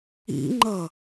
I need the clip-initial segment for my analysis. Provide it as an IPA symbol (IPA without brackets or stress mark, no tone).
ḭ